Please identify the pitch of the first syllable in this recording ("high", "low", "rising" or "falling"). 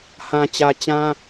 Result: low